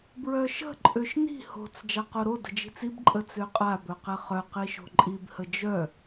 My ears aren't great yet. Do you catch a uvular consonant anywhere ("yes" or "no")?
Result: yes